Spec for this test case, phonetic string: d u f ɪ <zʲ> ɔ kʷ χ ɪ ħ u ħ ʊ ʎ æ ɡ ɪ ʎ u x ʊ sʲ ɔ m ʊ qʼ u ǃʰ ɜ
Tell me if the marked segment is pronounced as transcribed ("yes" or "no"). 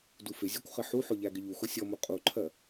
yes